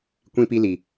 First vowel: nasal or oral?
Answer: nasal